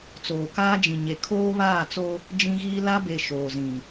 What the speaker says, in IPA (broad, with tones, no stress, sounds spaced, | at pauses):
t͡s oː˨ k aː˦ d͡ʒ ĩ˨ ɲ e˨ kʰ oː˦ β aː˦˨ t͡s o˦ | d͡ʒ ĩ˦ ɣ iː˦ l a˦ b e˨ ʃ oː˨ z ĩ˨